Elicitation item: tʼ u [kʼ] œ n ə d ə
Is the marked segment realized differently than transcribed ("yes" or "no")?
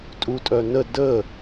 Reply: yes